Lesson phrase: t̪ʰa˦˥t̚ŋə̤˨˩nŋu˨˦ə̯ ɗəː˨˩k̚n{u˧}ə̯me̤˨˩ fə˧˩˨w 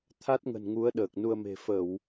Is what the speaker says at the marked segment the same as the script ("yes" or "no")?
yes